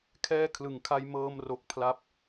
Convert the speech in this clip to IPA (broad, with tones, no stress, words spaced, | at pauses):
kʰɛː˥˩ kʰlɯ˨˩ŋkʰa˧j mɤː˧mro˨˩k̚ pʰla˦˥p̚